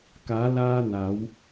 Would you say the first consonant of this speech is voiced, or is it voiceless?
voiceless